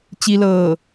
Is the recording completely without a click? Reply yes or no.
yes